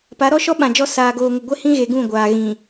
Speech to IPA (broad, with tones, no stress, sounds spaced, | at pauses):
p a˨˦ ɾ ɔ˦ ʃ ɔ˦ ɓ ã˨ d͡ʒ ɔ˦ s aː˨ ɡ oː˨ ŋ ʊ˨ ɡʷ e˦ h ĩ˦ ɣ e˨ ɡ ũ˦˨ ɡʷ aː˨ ɣ ĩ˨